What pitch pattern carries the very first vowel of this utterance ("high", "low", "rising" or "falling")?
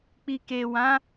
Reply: low